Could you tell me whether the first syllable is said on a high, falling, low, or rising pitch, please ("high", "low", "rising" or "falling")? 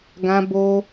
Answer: high